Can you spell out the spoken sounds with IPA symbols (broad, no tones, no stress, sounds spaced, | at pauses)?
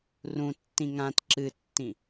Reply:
r ũ tː ĩ ŋ ã t ǁ ɨ tː ĩ